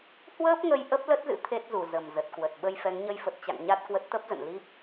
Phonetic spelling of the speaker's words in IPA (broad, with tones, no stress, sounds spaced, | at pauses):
h w əː˦˥ p̚ ŋ ə˧ j ʔ ə˦˥ p̚ l ə˦˥ t̚ z ɨ̰˧˥ t̪ʰ e˦˥ t̚ z u˧˩ z ə˨˩ m z ə˨˩ t̚ k w ə˨˩ t̚ ɓ ə˧ j f ɛ˨˦ ŋ ɲ ə˧ j f ə˨˩ t̚ t͡ɕ a̰˧˨ ŋ ɲ a˦˥ t̚ k w ə˦˥ t̚ t̪ ə˦˥ p̚ z ə̰˧˨ n l i˦˥ p̚